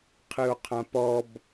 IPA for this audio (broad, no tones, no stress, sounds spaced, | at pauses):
qʰ ɨ o̯ qʰ ã p ɔ b